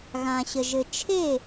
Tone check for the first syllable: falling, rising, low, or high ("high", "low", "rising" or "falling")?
low